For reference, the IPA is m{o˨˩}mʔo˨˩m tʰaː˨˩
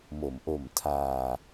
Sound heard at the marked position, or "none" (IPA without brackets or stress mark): o˩˦